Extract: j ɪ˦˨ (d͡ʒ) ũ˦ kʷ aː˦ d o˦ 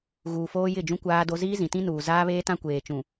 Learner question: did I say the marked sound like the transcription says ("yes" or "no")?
yes